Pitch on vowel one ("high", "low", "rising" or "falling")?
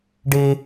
high